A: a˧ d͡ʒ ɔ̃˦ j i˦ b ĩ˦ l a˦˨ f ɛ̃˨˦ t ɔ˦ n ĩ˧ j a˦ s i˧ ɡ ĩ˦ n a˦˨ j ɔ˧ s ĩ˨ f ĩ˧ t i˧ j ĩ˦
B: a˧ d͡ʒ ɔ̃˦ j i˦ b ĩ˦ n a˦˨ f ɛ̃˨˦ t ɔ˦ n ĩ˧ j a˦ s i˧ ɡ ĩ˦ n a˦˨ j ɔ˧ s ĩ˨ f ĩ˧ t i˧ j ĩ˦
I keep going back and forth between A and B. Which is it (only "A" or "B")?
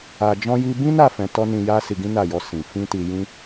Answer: B